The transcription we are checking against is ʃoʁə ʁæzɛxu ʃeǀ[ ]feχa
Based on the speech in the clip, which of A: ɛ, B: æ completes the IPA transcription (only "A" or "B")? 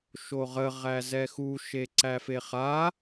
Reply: B